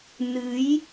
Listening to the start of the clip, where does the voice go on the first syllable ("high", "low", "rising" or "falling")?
rising